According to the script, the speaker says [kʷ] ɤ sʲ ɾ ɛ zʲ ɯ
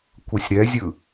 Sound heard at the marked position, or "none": kʷ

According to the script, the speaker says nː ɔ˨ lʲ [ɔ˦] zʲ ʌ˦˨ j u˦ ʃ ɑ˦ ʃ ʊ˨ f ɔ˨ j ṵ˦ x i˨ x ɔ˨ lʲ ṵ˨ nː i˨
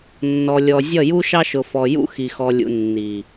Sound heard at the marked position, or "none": ɔ˨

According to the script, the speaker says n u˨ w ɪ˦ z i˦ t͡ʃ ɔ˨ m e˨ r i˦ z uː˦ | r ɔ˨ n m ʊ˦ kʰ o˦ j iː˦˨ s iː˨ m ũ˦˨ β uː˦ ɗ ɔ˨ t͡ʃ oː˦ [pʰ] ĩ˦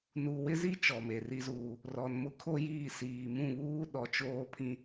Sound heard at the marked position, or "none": pʰ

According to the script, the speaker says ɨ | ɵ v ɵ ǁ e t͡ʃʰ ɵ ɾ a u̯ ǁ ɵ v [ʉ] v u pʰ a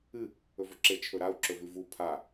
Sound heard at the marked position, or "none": ʉ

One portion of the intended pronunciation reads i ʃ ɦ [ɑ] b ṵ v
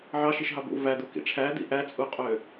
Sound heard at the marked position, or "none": ɑ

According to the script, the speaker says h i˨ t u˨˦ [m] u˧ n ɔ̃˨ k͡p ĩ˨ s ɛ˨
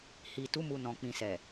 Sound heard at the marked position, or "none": m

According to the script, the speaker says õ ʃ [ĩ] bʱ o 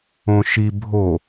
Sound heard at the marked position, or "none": i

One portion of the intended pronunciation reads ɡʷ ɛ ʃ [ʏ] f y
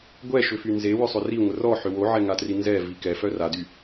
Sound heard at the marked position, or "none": ʏ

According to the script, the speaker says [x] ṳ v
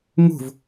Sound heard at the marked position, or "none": ŋ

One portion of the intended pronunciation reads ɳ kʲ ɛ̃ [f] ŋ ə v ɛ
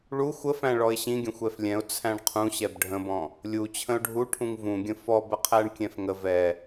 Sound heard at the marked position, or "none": f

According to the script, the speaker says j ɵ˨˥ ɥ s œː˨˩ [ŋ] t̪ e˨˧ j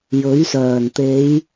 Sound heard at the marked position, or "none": n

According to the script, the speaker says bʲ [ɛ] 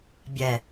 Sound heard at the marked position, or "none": ɛ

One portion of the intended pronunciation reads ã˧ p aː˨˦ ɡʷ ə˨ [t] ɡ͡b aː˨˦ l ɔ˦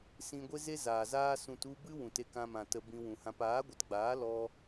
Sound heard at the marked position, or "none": t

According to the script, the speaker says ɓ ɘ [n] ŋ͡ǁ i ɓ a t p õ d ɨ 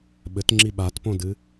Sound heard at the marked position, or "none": t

